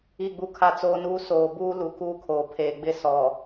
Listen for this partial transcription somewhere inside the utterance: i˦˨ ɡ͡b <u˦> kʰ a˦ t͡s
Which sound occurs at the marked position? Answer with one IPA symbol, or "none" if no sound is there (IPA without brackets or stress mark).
u˦